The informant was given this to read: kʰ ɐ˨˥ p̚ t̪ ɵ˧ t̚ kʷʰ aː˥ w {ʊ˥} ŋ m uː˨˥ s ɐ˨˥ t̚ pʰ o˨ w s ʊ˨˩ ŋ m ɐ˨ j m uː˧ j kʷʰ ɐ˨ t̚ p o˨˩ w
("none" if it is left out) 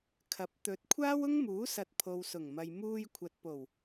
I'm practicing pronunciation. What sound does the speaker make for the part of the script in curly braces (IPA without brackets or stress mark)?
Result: ʊ˥